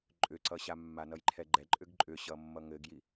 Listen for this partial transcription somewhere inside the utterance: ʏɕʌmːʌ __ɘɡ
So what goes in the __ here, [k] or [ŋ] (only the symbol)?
ŋ